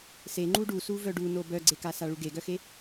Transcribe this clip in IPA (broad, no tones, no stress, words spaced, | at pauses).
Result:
se ŋ͡ǃuɖusu vœɖuno bœɡ͡ǀekasa ɭuɡeɡœxe